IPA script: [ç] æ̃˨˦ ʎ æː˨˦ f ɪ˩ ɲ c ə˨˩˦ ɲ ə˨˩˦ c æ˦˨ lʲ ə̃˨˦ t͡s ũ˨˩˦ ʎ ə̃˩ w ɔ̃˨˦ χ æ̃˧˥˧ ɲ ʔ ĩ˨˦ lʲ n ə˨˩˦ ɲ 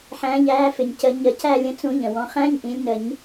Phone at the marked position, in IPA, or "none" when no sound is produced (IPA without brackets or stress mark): ħ